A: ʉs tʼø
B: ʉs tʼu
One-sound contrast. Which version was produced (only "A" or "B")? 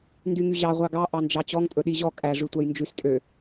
A